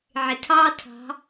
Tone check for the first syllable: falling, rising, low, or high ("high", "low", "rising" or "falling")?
low